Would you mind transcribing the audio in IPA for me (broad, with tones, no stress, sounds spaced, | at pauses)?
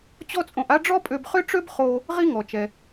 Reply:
t͡ɕ ɔ˥ t͡sʼ õ˧ ʔ a˥ ɖ͡ʐ ɔ˥ pʼ ø˧ b χ ø˥ ʈ͡ʂ ø˥ b χ o˧ | ʁ i˥ ŋ ɔ˩ t͡ʃ ɛ˩